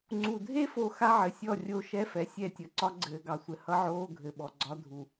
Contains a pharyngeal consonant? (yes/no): yes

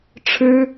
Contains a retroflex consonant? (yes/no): yes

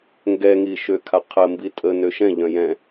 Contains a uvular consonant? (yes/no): yes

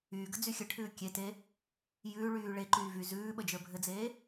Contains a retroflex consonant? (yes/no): yes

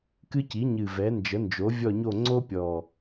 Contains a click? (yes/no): yes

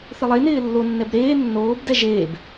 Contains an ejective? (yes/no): no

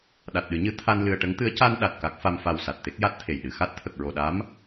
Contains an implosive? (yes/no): yes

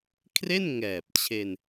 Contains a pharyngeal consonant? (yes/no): no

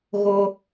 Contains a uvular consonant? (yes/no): no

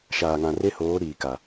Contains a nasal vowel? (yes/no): yes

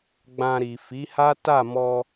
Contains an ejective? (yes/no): no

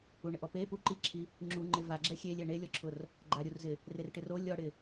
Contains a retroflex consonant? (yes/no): yes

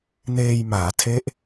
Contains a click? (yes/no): no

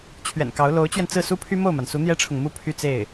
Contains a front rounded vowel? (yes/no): yes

